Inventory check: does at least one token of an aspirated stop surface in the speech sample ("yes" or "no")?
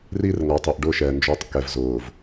no